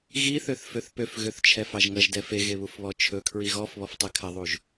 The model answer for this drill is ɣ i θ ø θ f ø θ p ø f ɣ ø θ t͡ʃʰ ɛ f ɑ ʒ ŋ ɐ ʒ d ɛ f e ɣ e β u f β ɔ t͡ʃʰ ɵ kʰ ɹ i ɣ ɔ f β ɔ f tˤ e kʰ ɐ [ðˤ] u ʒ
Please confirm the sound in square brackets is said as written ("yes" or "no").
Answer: yes